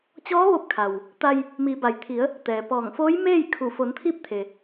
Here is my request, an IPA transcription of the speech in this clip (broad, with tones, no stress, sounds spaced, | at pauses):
t͡ɕ ɔː˧˥ ʋ o˧˥ p̚ kʰ a˩ w | t̪ a˧ j | m iː˩˧ b a˩ j t̪ʰ i˩˧ ə̯ | t̪ ɛː˩ p ɔː˧˩ ŋ f oː˧˥ j m eː˥˨ j kʰ u˧˩ f o˩˧ n t̪ʰ iː˧˥ p̚ t̪ʰ e˩